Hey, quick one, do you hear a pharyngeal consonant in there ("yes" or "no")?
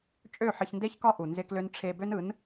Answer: yes